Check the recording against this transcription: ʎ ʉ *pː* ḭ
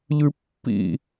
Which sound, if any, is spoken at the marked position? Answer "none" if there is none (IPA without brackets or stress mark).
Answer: pː